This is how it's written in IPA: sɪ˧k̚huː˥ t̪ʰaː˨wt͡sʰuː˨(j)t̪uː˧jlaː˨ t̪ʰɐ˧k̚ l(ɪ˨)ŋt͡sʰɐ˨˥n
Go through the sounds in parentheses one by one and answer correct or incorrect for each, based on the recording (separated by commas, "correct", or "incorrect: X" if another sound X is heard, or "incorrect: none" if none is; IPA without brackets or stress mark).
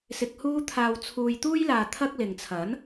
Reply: correct, correct